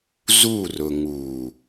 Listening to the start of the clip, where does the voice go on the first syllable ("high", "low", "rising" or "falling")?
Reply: falling